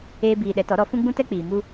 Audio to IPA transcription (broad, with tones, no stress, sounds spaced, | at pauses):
eː˦ b iː˧ ɗ ɛ˨˦ t ɔ˨˦ ɾ ɔ˨˦ f ũ˦ ɡ͡b ũ˦ t ɛ˦ k͡p iː˨ m u˦